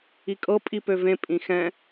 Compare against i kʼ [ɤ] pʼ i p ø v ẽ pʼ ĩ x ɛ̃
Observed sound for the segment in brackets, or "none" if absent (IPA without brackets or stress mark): ɤ